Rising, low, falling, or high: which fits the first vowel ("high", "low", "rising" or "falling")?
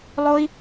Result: high